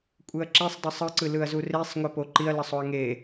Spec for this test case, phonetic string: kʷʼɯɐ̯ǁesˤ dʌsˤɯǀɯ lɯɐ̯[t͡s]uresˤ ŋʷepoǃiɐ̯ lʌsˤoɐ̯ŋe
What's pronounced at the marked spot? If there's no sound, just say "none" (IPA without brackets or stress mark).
z